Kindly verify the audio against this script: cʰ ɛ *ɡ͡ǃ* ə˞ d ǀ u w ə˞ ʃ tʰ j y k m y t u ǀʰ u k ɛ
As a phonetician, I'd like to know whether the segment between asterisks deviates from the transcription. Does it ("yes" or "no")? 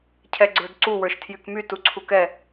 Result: yes